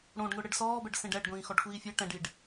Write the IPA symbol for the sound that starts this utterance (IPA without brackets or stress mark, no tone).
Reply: ɽ